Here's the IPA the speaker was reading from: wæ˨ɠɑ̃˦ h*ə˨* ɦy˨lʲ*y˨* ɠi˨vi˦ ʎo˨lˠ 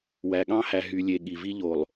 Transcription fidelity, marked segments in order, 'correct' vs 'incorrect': incorrect: æ˨, incorrect: e˨

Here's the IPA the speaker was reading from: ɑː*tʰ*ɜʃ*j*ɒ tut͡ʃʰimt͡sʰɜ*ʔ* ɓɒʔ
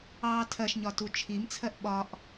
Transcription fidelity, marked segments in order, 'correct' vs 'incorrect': correct, incorrect: ɲ, correct

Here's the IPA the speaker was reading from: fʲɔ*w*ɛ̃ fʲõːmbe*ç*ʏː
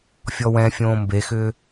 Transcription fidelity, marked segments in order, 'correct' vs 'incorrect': correct, incorrect: x

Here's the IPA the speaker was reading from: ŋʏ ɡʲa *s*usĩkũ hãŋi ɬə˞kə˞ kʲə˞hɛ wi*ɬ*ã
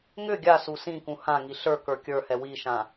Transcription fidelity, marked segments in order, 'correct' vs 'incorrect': correct, incorrect: ʃ

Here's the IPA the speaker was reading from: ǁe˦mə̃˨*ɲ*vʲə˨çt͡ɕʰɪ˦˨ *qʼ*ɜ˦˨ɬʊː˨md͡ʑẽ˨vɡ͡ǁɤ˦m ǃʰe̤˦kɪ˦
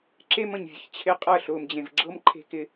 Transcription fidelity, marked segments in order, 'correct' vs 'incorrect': correct, correct

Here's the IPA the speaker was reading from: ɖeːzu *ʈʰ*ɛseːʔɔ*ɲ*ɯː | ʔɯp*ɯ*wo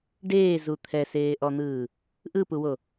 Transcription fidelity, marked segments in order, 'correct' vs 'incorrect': incorrect: t̪ʰ, incorrect: n̪, incorrect: u

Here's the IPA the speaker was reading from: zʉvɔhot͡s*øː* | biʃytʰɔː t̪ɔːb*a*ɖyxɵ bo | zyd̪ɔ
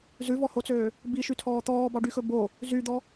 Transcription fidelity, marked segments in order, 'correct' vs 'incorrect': correct, incorrect: ɑ

